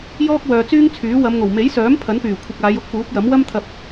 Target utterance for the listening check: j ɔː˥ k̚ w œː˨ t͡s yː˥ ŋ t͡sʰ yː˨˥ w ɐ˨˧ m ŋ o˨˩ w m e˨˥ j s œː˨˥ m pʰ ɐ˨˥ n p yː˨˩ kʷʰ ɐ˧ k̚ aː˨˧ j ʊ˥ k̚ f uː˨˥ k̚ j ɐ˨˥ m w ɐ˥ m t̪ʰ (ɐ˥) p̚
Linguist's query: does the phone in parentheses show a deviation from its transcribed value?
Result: yes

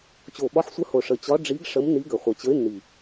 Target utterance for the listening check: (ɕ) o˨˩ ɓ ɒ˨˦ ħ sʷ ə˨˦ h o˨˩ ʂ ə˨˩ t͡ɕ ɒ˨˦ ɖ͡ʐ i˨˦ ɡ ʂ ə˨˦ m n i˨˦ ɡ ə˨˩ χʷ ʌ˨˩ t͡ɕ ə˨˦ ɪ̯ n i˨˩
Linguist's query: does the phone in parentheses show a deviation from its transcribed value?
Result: yes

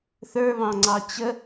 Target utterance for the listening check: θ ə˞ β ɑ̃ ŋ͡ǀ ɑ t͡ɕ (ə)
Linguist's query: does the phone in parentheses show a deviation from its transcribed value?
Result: no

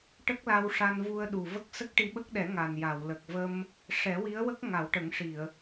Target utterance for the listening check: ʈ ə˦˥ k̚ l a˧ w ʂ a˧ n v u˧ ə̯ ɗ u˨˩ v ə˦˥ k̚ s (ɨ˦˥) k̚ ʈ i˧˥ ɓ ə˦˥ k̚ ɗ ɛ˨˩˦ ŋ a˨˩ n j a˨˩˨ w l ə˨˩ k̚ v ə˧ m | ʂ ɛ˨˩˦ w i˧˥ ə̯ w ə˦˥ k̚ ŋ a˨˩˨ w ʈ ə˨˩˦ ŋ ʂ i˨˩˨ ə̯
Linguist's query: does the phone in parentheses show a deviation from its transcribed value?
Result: yes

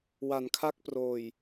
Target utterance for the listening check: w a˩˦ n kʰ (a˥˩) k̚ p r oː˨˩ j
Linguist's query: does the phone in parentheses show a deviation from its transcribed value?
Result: no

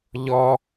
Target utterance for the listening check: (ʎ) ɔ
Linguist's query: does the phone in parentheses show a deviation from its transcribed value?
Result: no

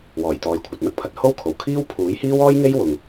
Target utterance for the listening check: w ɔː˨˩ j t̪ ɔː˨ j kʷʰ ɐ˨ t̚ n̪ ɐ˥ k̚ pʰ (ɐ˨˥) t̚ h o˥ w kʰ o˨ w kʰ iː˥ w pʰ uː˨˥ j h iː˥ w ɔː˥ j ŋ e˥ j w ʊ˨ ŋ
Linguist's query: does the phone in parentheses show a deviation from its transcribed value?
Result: no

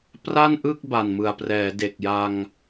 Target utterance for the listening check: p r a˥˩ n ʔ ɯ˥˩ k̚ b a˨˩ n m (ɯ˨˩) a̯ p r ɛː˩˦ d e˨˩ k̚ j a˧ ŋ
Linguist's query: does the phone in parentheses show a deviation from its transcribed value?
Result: no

